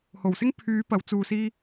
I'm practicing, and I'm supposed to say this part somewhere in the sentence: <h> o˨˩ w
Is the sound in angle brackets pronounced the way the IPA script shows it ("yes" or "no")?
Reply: yes